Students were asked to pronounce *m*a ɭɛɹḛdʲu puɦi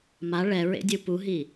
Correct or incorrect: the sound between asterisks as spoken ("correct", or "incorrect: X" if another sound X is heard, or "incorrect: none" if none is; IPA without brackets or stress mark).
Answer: correct